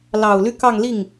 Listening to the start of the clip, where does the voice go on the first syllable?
low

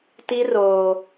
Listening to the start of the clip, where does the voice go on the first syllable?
high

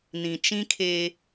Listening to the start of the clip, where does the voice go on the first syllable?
low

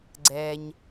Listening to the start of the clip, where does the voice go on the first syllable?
low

